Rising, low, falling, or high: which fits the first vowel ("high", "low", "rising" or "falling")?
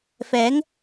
rising